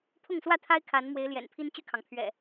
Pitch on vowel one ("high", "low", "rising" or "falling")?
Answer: falling